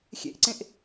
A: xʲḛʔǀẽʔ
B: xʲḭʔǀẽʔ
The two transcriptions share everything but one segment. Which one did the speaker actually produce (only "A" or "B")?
A